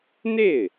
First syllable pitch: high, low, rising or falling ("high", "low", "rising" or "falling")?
falling